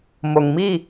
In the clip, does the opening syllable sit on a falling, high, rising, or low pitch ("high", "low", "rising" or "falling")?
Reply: low